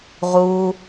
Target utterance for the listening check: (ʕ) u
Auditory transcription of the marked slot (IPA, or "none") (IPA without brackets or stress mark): ʁ